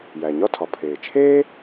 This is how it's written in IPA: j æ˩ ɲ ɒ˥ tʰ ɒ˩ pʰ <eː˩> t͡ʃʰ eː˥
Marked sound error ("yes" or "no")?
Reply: no